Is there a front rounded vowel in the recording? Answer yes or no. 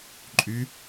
yes